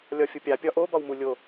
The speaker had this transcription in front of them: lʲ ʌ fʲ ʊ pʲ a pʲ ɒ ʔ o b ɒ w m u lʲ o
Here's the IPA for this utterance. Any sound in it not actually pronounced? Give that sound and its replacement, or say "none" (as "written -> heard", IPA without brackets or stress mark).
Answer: ʌ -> ɒ